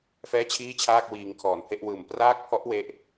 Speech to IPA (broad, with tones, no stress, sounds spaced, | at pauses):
f ɛː˥˩ t͡ɕʰ iː˥˩ t͡ɕʰ aː˥˩ k̚ w iː˧ ŋ kʰ ɔː˨˩ n pʰ e˥˩ ʔ w ɯː˨˩ m p r aː˥˩ k̚ pʰ ɔ˦˥ ʔ w e˥˩ ʔ